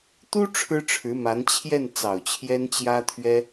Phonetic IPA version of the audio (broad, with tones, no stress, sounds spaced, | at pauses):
t̪ u˥ ʈ͡ʂʰ ɻ̩˥ ʈ͡ʂʰ ɻ̩˧˥ m a˧˥ n t͡ɕʰ j ɛ˥˩ n t͡s ɑ˨˩ ʊ̯ t͡ɕʰ j ɛ˥ n t͡ɕ j ä˥ t̪ʰ ɥ ɛ˥